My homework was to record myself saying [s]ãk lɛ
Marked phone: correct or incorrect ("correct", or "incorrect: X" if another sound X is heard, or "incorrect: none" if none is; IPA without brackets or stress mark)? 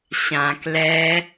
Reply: incorrect: ɕ